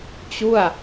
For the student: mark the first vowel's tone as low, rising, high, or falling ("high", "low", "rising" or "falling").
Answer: falling